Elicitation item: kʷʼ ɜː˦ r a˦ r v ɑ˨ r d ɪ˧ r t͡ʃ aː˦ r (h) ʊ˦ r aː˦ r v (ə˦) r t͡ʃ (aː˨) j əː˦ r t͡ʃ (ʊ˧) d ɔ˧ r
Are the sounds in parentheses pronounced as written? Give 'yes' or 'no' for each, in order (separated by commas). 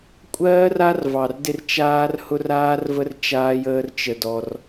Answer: yes, yes, no, no